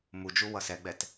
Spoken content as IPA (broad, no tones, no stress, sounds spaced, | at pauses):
m u d͡ʒ u w ʌ s ɛ ɡ͡b ɛ t